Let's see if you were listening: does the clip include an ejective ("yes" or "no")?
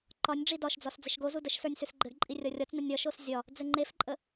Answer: yes